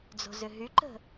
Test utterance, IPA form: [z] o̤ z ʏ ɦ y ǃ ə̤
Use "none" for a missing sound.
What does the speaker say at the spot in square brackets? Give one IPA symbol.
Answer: d͡z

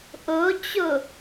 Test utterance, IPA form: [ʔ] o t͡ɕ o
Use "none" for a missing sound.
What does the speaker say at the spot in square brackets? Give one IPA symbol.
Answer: ʔ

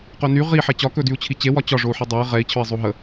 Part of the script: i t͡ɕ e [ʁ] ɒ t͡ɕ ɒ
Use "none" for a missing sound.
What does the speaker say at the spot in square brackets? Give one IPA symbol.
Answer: w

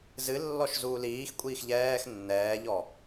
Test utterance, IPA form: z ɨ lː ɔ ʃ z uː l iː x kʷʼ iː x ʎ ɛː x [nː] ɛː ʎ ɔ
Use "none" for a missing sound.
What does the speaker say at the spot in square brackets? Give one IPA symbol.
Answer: nː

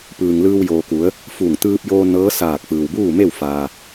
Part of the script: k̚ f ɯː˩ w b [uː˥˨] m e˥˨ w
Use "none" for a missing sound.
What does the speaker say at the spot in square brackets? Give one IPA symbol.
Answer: uː˥˨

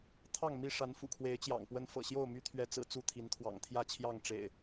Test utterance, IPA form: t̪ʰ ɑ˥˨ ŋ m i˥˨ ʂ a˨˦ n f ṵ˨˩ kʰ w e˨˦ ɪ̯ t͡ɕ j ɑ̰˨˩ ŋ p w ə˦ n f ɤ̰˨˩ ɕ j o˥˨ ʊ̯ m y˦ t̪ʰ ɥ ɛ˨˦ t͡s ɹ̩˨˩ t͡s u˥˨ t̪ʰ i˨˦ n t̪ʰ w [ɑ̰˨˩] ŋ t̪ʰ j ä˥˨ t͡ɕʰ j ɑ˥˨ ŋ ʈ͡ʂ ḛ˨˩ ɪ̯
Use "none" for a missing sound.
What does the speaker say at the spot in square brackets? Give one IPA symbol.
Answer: ɑ̰˨˩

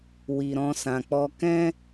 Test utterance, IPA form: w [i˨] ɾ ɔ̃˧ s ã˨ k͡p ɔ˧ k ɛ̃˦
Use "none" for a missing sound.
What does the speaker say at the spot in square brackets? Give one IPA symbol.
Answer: i˨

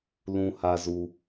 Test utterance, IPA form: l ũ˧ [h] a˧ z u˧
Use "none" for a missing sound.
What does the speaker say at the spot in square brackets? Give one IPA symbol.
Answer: h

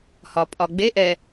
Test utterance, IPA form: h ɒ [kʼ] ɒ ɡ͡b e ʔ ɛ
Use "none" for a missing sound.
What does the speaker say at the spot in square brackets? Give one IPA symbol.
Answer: pʼ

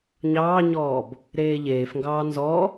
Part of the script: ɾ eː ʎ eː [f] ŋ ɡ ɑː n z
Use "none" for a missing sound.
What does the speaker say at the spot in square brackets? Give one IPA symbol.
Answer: f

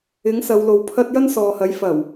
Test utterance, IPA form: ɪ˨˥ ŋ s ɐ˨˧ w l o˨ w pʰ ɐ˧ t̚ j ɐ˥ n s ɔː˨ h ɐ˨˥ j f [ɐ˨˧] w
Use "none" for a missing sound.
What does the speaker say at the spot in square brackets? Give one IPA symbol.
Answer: ɐ˨˩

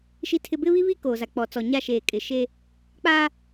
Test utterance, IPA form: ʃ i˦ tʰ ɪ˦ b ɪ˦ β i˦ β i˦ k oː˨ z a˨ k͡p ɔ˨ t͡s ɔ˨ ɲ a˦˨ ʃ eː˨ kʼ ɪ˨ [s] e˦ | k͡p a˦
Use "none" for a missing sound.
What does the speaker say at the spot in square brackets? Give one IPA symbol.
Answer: ʃ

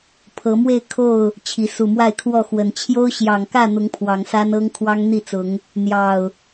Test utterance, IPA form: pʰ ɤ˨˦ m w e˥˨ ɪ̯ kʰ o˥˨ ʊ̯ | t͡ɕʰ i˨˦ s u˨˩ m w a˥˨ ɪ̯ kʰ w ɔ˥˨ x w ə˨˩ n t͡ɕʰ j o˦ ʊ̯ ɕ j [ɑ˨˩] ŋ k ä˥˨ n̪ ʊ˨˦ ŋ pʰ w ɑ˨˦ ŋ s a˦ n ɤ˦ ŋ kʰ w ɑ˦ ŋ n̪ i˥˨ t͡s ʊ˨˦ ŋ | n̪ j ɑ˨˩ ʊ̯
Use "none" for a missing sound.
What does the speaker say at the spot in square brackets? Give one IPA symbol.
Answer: ɑ˨˩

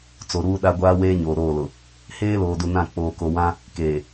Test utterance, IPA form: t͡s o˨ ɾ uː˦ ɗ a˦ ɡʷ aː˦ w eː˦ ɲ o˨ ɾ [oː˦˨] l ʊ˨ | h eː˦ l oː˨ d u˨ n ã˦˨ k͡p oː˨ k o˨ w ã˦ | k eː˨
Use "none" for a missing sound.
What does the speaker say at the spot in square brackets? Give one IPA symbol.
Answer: oː˦˨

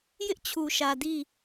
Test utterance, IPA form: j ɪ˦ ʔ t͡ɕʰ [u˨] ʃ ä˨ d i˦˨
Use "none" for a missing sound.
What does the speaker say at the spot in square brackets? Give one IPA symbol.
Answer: u˨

